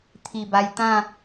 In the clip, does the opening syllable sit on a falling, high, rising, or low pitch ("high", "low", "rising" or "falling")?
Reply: low